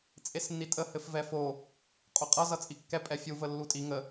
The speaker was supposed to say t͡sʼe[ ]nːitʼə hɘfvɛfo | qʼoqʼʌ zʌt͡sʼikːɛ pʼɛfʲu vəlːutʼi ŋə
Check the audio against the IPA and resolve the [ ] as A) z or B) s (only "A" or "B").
B